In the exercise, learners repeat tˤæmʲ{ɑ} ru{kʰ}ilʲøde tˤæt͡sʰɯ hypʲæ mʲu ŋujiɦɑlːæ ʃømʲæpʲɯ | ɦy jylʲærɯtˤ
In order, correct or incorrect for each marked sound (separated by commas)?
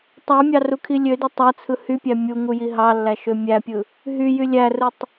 correct, correct